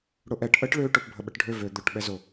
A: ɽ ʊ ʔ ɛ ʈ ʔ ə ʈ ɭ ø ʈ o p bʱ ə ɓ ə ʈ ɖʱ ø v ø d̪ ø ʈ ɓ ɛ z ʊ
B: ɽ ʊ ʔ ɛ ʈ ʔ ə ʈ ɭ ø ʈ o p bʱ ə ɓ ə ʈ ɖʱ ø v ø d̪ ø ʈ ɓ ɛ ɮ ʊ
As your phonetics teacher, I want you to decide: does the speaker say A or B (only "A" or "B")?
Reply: A